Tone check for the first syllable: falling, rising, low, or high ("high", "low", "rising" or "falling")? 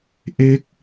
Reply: falling